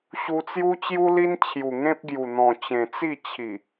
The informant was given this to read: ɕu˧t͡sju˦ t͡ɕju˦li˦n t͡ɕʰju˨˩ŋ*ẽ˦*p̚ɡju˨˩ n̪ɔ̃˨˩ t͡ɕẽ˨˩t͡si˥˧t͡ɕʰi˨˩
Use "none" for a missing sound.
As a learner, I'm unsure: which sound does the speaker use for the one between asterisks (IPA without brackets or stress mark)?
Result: ẽ˦